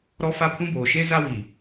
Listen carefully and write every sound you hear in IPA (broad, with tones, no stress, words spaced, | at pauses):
ɾɔ˦ fa˦pʰũ˦boː˨ ʃe˦za˦wi˨